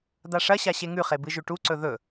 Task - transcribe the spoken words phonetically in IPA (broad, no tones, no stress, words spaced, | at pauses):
d̪aʂɐɕa ɕeŋʉχe bɨʒʉʈuǀɵ ðɵ